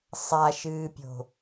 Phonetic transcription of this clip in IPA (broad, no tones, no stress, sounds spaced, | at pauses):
sˤ a ʃ ɨː pʲ o̤